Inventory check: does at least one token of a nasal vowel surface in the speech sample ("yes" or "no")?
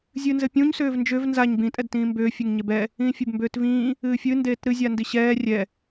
yes